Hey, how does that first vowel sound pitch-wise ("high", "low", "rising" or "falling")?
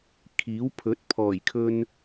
rising